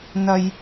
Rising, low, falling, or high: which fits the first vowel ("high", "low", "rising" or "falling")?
low